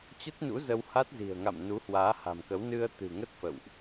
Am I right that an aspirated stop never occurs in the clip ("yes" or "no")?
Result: yes